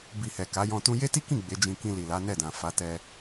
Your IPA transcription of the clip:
b i˨ h ɛ˨ k a˨˦ j ɔ̃˧ t ũ˧ j e˦ t i˦ k ĩ˦˨ ɡ͡b e˨˦ d͡ʒ ĩ˧ k ĩ˧ l i˨ l a˨˦ n ɛ˦˨ d ã˨ f a˨˦ t ɛ˧

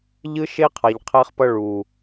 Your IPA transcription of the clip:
ʎ ɯ˦ ʃ e˦ qʰ a˨ ʎ qʰ ɛ˦ χ p ʌ˦ ɭ u˨

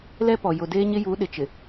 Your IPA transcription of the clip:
l ɛ˦ p ɔ˨ j ʊ˨ d eː˦ ɲ ɪ˦ j u˨˦ ɗ ɪ˨ t͡ʃ ɪ˨

